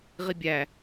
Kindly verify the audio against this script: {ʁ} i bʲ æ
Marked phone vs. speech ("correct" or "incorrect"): correct